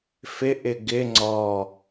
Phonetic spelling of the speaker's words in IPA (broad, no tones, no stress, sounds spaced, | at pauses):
f ɪ ʔ ɪ ɡ ɪ ŋ͡ǀ ɔ